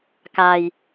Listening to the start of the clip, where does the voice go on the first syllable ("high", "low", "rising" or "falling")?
low